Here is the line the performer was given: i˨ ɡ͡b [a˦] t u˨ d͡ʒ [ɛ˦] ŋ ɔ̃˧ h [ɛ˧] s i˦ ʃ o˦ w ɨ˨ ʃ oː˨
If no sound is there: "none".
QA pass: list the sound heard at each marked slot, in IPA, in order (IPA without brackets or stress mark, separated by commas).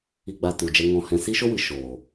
a˨, ɛ˧, ɛ̃˧